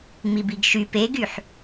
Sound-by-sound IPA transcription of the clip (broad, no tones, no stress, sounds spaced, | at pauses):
ŋ͡m i b i ɡ ʃ y p e ɡ y ħ